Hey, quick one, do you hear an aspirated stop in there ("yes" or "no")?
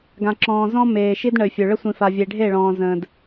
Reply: no